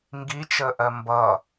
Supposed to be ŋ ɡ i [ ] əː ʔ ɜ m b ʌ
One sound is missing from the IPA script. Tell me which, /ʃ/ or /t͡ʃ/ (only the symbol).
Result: t͡ʃ